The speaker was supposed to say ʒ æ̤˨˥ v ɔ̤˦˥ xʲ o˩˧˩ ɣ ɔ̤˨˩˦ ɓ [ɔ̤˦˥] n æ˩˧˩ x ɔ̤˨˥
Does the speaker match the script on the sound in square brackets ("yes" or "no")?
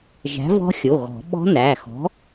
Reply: yes